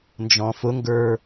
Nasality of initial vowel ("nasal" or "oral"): nasal